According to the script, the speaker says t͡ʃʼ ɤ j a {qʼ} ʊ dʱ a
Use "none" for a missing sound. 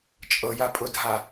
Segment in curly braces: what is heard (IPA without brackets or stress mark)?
pʼ